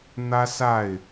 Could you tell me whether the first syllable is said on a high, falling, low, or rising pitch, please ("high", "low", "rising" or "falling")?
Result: high